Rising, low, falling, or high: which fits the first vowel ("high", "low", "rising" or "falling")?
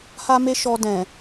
high